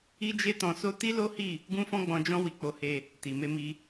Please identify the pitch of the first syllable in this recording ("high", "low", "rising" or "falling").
high